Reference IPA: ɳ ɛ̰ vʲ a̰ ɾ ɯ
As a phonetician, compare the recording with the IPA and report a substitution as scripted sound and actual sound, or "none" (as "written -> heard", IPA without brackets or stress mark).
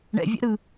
none